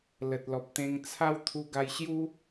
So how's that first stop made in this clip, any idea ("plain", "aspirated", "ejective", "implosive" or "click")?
plain